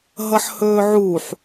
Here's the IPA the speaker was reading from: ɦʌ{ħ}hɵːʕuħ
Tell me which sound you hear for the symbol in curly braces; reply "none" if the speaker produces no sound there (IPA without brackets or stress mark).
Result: ħ